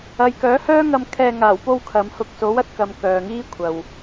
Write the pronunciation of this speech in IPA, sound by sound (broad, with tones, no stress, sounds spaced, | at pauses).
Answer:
ɐ˨ j k œː˨˥ h œː˥ ŋ ɐ˧ m kʰ ɛː˧ ŋ aː˨˩ w p o˧ w kʰ ɐ˨˧ m h ʊ˧ k̚ s o˨˥ w ɐ˧ t̚ k ɐ˨ m k œː˨ ŋ iː˥ kʷʰ ɐ˨ w